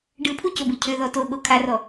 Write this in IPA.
ɖ ɯ pʰ u c o b ɯ cʰ ø ð ɔ t o ɠ o kʰ a r ɔ

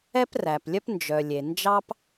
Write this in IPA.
ɛ˥ p r æ˩ p lʲ œ˥ p n d͡ʒ œ˩ lʲ e˩ n d͡ʒ ɑ˥ p

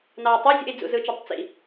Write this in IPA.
n ɑ u̯ tˤ e zʲ ṵ i̯ d͡z ṵ z ɯ t͡ʃ ø tˤ t͡s ḭ

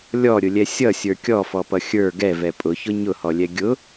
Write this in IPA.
lʲ ɔ ɾʲ ʊ lʲ ɛ sʲ ʌ sʲ ə˞ kʲ ɔ f ɔ p ʌ xʲ ə˞ ɡ ɛ v ɛ pʼ ʊ ç ʊ ɲ ʊ h ɔ lʲ ɛ ɡʲ ʊ

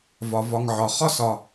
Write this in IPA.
v ɒ˩ v ɒ˨ ŋ ʕ ɒ˩ χ ɒ˥ s ɒ˨

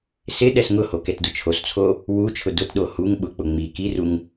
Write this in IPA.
s ɪ ɗ ɛ s ŋ ʊ h o k ɛ t d ʊ t͡ʃʰ o s t͡sʰ o | w u t͡ʃʰ ʊ d ʊ t ɗ o h u ŋ ɓ ʊ k͡p ʊ ŋ͡m i k i r u ŋ

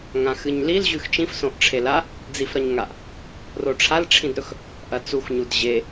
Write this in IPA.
ŋ ã x ɨ ɲ l i l ʑ ʉ x t͡ʃ ĩ f s õ ʔ ʈ͡ʂʰ e l a | d͡z i f ɾ ɐ ɲ ŋ a ʔ | r o ʈ͡ʂʰ a l ʈ͡ʂʰ ĩ d ɾ ɵ x | ʔ ɐ t͡s u x ɲ u d ʑ e

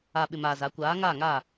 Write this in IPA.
a˨ ɓ ɪ˨ m aː˨ z a˨˦ kʷ aː˨˦ ŋ aː˦˨ ŋ a˦˨

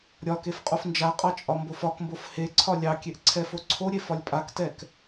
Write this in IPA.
ɾʲ ɒ k e f qʼ o f n d͡ʒ a qʼ ɑ t͡ʃʼ ɒ m b o f ɒ k m b o f h e ǀʰ ɒ lʲ ɑ kʲ e ʔ ǀʰ ɛ f o ǀʰ o ɾʲ e f ɒ lʲ pʼ a k t ɛ k

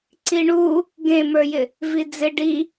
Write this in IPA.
ǀ i ɳ u | ɡ ẽ m ə˞ j ɪ | v i d͡z ɪ ɖ i

